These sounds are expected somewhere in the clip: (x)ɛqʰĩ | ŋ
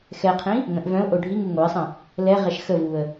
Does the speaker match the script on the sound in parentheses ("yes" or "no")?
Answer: yes